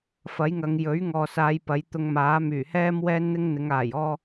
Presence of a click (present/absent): absent